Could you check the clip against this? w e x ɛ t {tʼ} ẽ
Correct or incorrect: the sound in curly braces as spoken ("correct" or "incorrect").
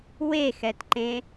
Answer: incorrect